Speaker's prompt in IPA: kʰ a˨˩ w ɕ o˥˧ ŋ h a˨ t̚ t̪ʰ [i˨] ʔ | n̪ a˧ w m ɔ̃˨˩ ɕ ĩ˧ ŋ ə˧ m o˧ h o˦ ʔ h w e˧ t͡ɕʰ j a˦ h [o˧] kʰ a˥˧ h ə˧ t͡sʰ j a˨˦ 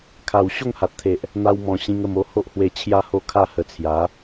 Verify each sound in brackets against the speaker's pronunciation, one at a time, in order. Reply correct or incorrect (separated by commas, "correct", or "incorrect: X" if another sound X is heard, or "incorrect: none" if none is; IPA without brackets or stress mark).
incorrect: e˨, incorrect: o˥˧